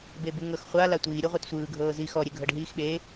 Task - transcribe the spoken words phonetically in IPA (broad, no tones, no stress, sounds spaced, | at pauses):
b e b u ŋ ɤ x χʷ a l a tʷ iː ɾʲ u ʁʷ ɛ t sʷ ɯː ɡʱ ɤː z i x ɔ ɾʲ e ɡʱ ɤ ɖ ɦ iː x ɓ e